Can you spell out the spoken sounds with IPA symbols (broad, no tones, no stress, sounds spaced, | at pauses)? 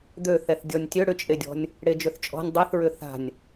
d̪ ø θ ɛ θ dʲ ɔ nʲ tʲ ø ɽ ʏ t͡ʃʼ e dʲ ɔ̤ nʲ | ɽ e d͡ʒ ø θ t͡ʃʼ ɔ̤ nʲ dˤ e θ ɹ ʏ θ a̤ nʲ